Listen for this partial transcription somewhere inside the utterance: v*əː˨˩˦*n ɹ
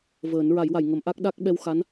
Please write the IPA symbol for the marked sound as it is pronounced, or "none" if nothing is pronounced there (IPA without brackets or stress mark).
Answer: əː˨˩˦